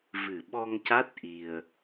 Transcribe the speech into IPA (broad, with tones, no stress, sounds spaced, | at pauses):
v ɨ˨˩ ɓ ɔ˧ ŋ c a˦˥ t̚ ʔ i˧ ə̯